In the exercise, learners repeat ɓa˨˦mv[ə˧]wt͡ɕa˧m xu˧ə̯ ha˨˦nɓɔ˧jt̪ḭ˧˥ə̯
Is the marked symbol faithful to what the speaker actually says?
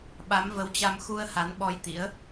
no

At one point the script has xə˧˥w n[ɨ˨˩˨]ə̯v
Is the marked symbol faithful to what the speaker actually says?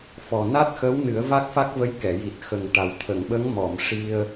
no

